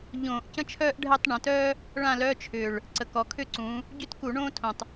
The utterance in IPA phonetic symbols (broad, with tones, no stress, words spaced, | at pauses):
ʎõː˧˩˧ʔcə̃˥t͡ʃʰœː˥ʔɖʱɛ˥˧tˤ ɳə̃˩˧tœː˥ | ɭã˥˧lœ˧˥˧t͡ʃʰʏː˨˩ɭ | ǀə˨˩kɔ˩˧kʰʏ˥˧ǀũː˩˧ | ɟʏ˥tku˧˩˧ ɳõː˥tʰõ˨˩tˤ